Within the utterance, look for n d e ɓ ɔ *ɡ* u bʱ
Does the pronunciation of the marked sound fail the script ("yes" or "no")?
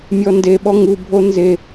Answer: yes